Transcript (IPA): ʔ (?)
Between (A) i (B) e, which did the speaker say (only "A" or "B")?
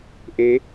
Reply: B